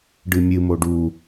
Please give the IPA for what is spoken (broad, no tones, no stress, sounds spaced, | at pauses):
ɖ ɨ mʲ ɨ m o ɖ u